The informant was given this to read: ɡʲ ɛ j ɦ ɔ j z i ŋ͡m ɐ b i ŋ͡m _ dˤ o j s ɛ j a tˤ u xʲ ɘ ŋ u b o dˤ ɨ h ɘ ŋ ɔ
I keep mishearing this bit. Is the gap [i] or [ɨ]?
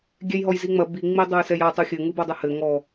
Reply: i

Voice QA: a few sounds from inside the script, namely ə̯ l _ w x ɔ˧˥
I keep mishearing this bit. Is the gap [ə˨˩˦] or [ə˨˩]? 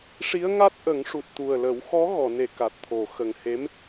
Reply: ə˨˩˦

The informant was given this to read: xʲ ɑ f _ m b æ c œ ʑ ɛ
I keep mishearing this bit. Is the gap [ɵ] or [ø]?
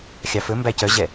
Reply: ɵ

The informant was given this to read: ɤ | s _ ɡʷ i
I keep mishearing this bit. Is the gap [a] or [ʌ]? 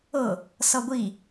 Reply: ʌ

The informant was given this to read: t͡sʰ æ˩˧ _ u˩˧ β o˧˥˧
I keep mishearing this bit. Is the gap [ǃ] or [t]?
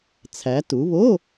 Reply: t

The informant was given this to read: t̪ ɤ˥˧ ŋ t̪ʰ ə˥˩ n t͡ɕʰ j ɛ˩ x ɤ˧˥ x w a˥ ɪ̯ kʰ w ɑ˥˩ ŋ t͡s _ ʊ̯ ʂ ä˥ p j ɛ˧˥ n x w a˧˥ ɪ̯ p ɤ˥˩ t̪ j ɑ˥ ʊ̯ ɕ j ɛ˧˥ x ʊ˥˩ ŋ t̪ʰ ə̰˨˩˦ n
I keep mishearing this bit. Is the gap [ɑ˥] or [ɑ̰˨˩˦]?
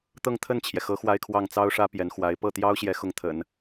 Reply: ɑ˥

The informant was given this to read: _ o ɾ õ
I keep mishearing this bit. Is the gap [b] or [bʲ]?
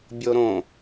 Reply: bʲ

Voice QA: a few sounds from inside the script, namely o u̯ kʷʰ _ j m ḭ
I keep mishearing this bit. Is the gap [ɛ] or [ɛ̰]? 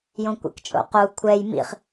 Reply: ɛ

